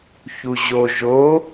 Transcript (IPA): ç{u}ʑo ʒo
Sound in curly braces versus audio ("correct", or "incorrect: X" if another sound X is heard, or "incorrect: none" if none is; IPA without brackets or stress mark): correct